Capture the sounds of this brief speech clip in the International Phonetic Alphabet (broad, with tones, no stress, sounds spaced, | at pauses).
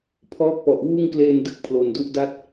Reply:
pʰ ɔː˦˥ k̚ p ɔ˨˩ ʔ w uː˥˩ ŋ k l eː˧ n d ɯ˦˥ k̚ pʰ l o˨˩ n d u˥˩ ʔ d a˥˩ t̚